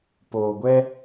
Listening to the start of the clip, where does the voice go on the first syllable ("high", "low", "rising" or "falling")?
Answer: low